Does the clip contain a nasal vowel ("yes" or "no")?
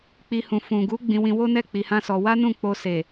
yes